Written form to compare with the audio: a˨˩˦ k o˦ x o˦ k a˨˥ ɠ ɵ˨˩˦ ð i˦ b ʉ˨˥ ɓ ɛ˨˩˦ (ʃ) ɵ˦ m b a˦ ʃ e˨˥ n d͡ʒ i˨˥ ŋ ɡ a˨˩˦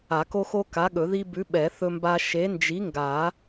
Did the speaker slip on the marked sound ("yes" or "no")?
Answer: yes